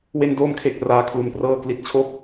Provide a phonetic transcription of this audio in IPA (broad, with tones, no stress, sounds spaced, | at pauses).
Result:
w e˧ n d oː˧ m kʰ e˨˩ k̚ r aː˧ kʰ l u˧ n p r ɤː˥˩ k l i˦˥ t̚ t͡ɕʰ o˥˩ k̚